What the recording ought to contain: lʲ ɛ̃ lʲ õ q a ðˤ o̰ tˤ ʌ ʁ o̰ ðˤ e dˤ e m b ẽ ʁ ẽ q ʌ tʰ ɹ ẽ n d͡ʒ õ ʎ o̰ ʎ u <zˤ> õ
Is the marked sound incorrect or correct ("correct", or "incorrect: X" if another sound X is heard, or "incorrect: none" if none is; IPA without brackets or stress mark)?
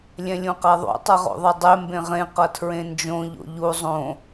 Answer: correct